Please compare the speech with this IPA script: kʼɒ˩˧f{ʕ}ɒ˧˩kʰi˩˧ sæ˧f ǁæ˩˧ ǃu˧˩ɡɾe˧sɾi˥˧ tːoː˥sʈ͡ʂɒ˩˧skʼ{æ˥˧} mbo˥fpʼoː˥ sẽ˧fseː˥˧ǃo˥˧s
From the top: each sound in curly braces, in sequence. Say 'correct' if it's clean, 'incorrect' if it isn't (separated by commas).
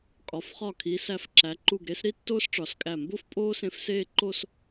incorrect, incorrect